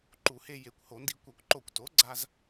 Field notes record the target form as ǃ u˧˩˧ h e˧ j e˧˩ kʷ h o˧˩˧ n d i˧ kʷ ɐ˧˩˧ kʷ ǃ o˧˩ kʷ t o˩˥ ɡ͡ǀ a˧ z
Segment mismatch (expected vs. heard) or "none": none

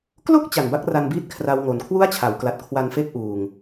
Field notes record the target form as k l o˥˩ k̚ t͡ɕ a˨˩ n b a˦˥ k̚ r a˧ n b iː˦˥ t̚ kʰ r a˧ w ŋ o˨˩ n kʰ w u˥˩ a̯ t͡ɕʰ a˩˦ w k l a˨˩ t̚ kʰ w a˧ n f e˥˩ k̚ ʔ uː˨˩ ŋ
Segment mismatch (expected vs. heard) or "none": none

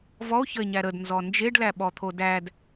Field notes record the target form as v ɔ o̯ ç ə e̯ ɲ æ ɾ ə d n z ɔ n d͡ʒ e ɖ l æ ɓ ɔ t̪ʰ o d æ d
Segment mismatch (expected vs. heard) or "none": none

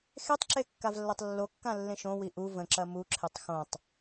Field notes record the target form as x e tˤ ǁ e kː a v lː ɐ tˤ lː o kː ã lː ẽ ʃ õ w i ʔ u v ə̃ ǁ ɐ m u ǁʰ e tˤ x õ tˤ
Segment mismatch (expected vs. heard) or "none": none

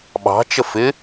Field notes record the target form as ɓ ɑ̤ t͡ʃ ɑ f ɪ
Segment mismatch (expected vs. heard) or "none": ɑ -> ə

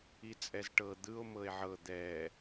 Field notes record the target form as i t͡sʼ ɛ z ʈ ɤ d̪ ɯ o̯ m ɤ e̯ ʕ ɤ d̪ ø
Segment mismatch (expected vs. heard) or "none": ø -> ɛ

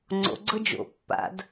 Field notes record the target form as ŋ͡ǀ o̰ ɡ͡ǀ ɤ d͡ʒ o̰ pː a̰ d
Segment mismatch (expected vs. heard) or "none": none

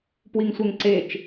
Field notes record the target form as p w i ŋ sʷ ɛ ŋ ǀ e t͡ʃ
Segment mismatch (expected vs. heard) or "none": none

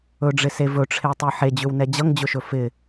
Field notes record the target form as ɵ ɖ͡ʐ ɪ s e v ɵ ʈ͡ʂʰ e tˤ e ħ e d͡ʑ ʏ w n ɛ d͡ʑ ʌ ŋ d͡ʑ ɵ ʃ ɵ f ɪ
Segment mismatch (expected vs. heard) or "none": none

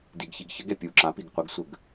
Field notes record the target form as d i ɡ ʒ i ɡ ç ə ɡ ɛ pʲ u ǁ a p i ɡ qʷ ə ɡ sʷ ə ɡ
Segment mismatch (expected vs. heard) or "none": ʒ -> ç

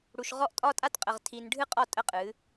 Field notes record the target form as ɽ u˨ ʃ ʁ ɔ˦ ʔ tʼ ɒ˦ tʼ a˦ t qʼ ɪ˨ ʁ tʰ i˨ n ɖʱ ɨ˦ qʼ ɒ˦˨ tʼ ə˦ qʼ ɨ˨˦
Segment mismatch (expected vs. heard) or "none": ɪ˨ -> ə˨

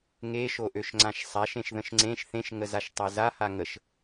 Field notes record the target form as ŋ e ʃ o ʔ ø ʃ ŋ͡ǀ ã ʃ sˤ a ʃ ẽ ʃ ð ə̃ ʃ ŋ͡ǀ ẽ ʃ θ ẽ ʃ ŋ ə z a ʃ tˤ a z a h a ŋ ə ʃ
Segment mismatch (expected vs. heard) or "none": none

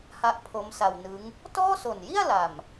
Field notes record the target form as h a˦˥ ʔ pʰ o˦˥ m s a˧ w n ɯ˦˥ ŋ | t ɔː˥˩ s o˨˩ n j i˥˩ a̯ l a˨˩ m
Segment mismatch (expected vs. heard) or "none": none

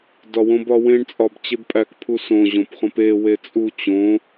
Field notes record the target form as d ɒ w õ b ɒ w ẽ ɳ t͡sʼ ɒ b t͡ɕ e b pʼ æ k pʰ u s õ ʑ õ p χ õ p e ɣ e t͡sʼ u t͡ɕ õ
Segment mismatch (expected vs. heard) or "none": ɣ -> w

